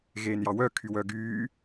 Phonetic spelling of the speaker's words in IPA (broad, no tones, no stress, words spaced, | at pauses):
ɣeːnjɑwœkʰy wœɡyː